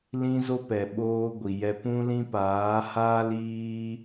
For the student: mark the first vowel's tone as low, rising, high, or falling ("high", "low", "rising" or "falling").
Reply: high